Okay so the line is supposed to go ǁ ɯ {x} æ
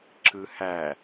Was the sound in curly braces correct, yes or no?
no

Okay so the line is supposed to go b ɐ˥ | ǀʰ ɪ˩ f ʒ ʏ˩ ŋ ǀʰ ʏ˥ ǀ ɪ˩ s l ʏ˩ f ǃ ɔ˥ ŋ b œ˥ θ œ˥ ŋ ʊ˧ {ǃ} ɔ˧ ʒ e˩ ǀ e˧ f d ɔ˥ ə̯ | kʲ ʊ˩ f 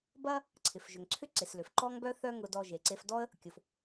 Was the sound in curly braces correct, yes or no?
no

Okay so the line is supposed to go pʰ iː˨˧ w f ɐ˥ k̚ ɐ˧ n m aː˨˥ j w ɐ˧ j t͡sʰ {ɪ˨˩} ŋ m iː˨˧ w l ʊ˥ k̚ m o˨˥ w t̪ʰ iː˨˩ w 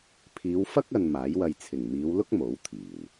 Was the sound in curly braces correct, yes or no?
yes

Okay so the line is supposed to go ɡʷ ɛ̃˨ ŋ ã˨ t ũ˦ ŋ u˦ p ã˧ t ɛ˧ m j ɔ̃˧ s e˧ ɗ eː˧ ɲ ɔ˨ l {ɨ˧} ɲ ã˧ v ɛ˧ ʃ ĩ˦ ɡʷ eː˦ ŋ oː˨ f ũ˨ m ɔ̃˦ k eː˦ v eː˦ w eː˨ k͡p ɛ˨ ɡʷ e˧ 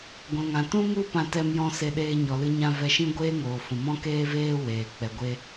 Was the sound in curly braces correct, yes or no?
yes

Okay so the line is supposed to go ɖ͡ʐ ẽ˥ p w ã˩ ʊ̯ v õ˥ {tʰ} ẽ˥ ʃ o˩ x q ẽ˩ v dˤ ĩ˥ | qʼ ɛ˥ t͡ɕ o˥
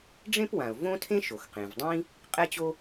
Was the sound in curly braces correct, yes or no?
yes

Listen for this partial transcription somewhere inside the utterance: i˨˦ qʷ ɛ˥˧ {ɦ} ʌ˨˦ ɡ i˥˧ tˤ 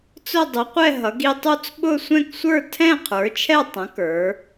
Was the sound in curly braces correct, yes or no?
yes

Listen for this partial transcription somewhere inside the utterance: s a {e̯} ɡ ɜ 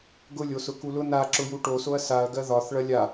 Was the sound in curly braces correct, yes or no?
no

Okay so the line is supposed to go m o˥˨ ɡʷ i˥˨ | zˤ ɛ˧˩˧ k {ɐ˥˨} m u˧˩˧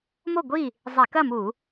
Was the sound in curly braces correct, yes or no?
yes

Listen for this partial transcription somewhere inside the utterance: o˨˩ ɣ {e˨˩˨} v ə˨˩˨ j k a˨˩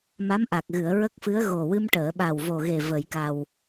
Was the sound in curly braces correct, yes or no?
no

